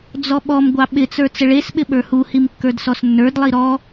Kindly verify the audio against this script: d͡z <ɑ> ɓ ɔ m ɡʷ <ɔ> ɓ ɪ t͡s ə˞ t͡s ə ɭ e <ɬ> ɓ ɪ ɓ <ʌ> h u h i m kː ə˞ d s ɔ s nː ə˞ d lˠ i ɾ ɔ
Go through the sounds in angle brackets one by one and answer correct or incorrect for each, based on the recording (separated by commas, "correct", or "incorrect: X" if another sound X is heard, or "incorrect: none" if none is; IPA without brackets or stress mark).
incorrect: ɔ, incorrect: ɑ, incorrect: s, incorrect: ə˞